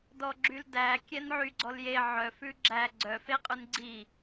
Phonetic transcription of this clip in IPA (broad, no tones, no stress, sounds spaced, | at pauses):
d ɔ ɡ͡ǁ y l d æ kʲ ɛ n ʕ y ɡ͡ǀ ɔ l j e ʕ œ f ʉ ɡ͡ǁ æ ɡ͡ǀ œ f e qʼ ʉ n ɡ͡ǀ i